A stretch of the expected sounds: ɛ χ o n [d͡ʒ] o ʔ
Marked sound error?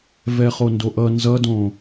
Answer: yes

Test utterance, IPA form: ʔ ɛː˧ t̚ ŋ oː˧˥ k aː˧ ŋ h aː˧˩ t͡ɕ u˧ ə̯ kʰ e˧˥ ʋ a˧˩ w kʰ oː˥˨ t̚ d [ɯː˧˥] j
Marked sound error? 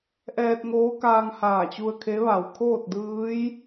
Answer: no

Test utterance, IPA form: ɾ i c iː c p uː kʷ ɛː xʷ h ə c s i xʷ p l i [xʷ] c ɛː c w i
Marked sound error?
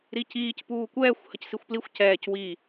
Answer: no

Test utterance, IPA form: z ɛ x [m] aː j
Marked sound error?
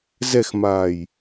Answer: no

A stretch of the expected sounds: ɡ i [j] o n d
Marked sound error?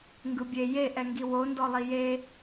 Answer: yes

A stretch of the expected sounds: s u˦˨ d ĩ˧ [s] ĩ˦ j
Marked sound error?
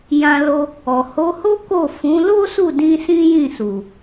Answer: no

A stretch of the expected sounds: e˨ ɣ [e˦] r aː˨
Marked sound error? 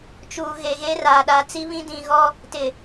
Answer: no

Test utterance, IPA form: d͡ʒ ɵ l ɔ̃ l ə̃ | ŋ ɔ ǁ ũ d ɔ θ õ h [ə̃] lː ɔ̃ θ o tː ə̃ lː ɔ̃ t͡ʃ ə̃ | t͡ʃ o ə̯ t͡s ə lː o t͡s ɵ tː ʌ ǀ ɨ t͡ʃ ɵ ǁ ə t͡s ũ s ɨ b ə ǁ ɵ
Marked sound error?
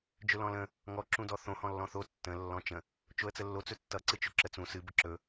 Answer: yes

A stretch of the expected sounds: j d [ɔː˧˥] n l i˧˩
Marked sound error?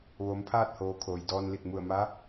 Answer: yes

